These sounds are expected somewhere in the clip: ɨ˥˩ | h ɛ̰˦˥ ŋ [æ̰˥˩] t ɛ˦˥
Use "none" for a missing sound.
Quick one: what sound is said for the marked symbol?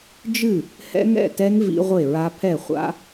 ɛ̰˥˩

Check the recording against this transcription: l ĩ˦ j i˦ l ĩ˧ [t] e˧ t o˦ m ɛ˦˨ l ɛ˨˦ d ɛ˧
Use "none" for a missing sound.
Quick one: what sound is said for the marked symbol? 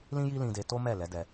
d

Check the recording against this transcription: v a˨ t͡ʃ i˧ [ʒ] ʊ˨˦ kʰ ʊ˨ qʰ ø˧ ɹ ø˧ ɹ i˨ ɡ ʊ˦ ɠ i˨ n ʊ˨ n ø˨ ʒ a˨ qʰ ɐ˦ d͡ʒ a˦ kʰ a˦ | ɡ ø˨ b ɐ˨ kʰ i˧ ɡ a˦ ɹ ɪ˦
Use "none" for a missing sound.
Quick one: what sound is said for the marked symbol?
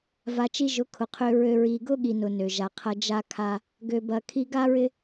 ʒ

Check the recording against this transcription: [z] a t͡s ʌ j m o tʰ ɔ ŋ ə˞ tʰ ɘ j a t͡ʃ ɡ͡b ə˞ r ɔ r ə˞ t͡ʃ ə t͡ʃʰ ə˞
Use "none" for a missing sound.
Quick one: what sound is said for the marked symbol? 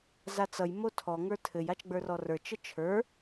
z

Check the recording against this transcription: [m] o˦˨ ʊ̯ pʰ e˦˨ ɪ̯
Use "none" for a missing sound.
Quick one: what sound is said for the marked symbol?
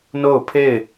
n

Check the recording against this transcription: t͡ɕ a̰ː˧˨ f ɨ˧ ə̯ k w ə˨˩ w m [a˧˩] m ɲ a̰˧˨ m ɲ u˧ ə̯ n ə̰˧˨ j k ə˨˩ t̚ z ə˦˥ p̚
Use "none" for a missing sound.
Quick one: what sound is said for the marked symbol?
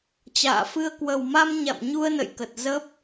a˧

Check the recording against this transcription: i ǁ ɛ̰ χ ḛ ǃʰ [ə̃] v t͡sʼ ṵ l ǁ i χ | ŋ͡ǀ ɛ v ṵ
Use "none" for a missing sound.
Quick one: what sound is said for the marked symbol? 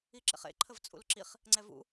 ə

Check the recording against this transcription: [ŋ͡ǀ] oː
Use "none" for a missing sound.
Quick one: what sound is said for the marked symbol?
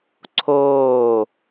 ǀʰ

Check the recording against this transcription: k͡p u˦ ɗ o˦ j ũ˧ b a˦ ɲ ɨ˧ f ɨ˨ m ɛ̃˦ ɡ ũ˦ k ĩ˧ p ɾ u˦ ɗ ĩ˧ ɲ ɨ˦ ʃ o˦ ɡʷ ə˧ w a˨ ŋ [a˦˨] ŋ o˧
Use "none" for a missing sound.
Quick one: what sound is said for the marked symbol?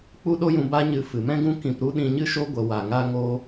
a˧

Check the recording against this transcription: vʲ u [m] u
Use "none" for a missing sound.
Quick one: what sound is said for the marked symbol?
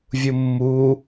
mː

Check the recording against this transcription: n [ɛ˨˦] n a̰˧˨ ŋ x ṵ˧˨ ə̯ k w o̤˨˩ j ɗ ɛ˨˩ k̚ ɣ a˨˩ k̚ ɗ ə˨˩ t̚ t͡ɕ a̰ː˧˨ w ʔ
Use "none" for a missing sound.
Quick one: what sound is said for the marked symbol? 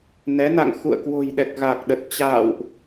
ɛ˨˦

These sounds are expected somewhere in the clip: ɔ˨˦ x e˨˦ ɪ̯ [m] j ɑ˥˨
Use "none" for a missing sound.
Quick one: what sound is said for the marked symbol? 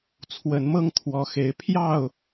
pʰ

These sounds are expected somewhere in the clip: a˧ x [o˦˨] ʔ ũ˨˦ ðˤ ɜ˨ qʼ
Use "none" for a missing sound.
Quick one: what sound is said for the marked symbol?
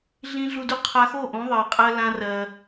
o˦˨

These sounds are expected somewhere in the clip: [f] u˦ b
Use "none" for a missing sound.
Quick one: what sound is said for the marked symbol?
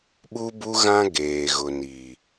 ɓ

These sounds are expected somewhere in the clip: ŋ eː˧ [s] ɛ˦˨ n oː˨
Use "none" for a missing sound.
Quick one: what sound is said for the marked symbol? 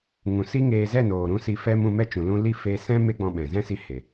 z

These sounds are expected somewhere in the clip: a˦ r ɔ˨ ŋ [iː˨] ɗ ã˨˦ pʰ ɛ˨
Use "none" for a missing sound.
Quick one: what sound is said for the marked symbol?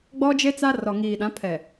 iː˨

